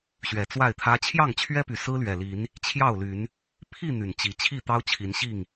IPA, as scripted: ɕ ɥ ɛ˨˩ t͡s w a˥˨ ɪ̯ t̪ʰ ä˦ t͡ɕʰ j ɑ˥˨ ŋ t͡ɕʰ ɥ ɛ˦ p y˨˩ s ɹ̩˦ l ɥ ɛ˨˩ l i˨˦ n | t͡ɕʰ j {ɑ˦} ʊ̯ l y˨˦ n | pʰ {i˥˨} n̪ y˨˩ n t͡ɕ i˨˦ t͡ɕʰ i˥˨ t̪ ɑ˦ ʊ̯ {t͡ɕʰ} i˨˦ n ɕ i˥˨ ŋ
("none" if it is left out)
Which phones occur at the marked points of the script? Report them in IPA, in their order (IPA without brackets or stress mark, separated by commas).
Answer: ɑ˥˨, i˥˨, t͡ɕʰ